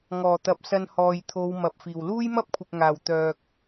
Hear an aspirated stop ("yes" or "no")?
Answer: yes